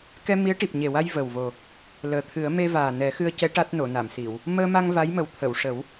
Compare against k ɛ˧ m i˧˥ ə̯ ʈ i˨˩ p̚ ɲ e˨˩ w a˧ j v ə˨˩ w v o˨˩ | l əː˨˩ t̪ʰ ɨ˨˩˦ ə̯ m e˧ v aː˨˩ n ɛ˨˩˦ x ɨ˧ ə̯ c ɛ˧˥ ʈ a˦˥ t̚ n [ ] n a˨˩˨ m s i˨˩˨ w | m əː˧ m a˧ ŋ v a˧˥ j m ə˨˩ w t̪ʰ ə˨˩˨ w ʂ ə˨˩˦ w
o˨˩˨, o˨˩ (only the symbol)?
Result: o˨˩˨